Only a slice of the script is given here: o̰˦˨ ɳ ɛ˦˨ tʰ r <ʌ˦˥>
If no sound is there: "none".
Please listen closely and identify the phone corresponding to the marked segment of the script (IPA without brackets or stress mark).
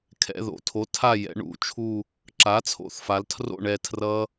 ʌ˦˥